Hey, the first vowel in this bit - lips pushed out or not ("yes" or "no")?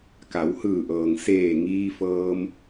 no